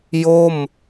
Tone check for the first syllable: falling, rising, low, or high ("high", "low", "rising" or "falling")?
falling